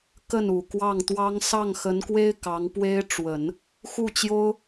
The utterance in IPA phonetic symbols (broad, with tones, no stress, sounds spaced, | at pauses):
k ə˥˩ n u˨˩ k w ɑ˥˩ ŋ t̪ w ɑ˥ ŋ s ɑ˥˩ ŋ x ə˧˥ n k w e˥ ɪ̯ k ɑ˧˥ ŋ p w e˥ ɪ̯ ʈ͡ʂ w ə˨˩˦ n | x u˥˩ t͡ɕ j o˥ ʊ̯